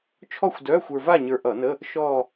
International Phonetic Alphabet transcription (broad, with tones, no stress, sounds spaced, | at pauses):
t͡ʃʰ ɔ˥˧ xʷ d œː˧˥˧ xʷ ə˞˧ v a˥˧ ɲ ə˞˧ ʔ ʌ˧˩˧ n ə˧˥˧ | ʃ ɔː˥˧